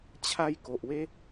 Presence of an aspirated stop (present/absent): present